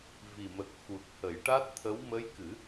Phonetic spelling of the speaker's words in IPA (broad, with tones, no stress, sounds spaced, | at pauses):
v i˨˩ m ə˨˩ k̚ x u˨˩ t̚ h ə˨˩˦ j ʈ a˦˥ t̚ t̪ʰ ə˧˥ w m ə˧˥ j k ɨ˨˩˦